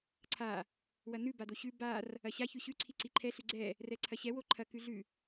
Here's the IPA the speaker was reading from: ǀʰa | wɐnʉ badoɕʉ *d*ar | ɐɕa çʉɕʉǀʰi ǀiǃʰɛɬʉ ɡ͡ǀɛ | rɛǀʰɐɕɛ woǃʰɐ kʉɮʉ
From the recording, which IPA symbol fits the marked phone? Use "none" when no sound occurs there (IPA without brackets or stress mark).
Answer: b